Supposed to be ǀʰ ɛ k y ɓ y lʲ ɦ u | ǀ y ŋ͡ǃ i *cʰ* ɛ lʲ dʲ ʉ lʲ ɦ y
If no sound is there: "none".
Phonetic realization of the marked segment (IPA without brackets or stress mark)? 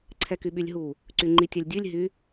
tʲ